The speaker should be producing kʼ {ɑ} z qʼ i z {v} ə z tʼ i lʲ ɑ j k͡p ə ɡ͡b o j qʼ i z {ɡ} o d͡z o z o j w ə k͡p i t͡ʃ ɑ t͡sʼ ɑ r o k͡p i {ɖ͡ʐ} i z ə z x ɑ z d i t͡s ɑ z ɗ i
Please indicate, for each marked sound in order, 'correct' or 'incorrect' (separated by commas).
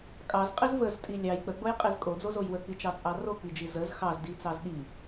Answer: correct, correct, incorrect, incorrect